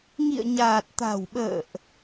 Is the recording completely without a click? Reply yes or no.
yes